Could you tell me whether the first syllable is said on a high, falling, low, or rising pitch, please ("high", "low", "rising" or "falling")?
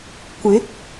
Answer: rising